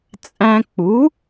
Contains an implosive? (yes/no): no